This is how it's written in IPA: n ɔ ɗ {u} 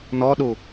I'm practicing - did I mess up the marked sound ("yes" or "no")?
no